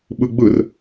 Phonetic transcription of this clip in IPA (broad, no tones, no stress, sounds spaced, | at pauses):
ɓ ɯ ɡ͡b ɯ r